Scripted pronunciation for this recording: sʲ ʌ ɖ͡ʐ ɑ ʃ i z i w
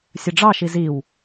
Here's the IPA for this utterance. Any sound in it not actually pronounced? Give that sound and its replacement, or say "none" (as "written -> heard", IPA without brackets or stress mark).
none